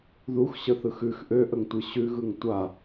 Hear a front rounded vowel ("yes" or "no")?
yes